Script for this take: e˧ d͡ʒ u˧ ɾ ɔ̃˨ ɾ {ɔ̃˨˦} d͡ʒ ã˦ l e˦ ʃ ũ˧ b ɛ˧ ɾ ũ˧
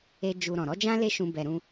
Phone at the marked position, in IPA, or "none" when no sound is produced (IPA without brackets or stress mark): ɔ˨˦